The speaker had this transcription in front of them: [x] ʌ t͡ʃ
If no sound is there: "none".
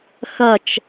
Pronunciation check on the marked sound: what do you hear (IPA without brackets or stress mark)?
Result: x